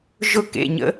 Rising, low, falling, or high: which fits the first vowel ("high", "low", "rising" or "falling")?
falling